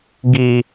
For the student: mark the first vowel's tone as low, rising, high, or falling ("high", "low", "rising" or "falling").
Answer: low